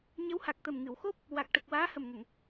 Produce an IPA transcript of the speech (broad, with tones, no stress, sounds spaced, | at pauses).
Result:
ɲ ə˧˥ w h a˨˩ k̚ t̪ ə˨˩ m ŋ ɨ˨˩˨ w x o˦˥ p̚ | w a˨˩ k̚ ʈ ə˨˩ k̚ w aː˧˥ h ə˨˩ m ŋ ə˨˩˨ ŋ